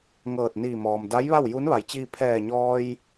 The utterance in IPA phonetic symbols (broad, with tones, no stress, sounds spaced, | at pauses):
ŋ ɤː˧˩ t̚ n iː˧˩ m ɔː˩ m d a˧˥ j ʋ a˥˨ w j u˧˥ n ʋ a˩˧ j t͡ɕ iː˧ pʰ ɛː˧˩ ɲ ɔː˧ j